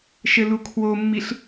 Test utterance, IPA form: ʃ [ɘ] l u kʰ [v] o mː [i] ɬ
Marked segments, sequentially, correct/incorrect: correct, incorrect, correct

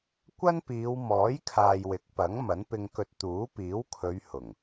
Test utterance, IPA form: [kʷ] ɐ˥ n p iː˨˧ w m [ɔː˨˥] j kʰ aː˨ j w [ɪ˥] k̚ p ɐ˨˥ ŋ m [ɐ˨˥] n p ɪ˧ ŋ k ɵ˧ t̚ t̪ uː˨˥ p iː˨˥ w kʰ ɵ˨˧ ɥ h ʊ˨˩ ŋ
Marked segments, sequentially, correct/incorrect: correct, correct, incorrect, correct

